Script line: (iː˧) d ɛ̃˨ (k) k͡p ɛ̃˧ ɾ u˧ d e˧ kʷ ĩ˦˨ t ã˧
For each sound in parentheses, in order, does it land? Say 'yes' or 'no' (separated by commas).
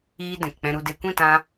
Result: no, yes